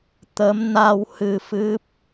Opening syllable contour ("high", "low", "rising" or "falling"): rising